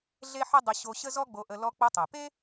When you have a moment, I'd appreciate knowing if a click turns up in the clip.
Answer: no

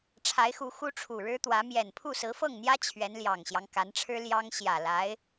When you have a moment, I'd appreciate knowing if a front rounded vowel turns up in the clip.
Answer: no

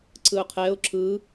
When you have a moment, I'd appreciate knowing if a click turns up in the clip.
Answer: yes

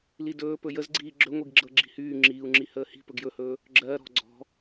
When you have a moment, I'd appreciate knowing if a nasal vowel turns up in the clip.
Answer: no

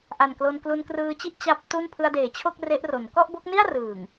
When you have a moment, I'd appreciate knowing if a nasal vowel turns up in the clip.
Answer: no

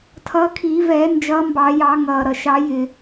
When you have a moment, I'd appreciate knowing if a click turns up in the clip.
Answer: no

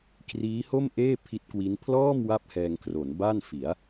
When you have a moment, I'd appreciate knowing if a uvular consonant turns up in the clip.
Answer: no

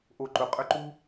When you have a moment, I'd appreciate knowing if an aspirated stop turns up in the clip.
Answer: no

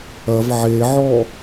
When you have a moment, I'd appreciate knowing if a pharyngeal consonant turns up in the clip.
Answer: yes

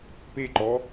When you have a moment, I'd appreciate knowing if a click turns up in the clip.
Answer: yes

